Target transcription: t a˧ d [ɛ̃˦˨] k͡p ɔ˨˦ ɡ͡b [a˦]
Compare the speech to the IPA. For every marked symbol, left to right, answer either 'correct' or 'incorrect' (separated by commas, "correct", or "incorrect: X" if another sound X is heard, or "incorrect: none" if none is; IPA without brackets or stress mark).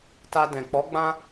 incorrect: ɛ̃˨, incorrect: ã˦